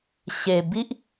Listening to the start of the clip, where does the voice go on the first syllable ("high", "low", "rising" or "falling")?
low